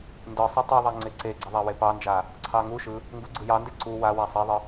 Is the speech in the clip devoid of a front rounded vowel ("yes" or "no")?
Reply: yes